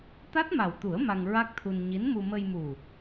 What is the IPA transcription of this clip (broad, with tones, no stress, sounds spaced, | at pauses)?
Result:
t̪ a˦˥ t̚ m a˨˩ w t̪ u˨˩˦ ə̯ m a˧ ŋ ɹ a˦˥ k̚ t̪ʰ u˧ n ɲ i˧˥ n m u˧ m ə˧ j m u˨˩